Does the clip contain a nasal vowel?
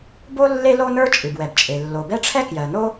no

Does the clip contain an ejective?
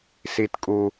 yes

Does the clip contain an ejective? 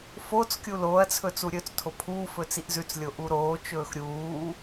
no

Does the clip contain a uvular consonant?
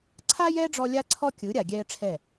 no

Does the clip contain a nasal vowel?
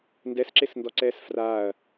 no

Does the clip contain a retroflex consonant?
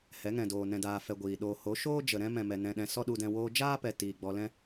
no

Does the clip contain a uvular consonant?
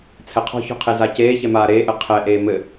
yes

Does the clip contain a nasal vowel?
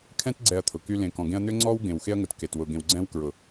yes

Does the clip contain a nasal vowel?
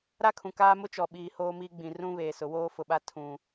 yes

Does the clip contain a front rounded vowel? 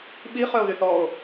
yes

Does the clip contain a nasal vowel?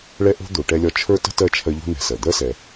no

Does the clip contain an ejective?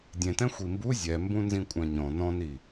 yes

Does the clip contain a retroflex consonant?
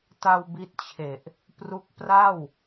no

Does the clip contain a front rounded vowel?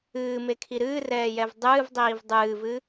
no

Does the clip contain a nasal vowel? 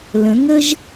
yes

